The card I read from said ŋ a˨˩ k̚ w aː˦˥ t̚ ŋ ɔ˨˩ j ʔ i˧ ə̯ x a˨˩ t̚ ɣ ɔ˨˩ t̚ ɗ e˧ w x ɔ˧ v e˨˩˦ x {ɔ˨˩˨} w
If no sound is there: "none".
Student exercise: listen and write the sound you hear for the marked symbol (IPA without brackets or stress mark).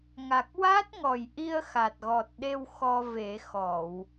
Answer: ɔ˨˩˨